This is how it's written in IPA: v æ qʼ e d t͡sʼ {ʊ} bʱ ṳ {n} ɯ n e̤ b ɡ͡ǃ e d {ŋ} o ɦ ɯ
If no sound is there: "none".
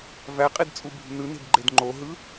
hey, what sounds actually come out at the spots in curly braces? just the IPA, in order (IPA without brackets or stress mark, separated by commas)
u, n, ŋ͡ǃ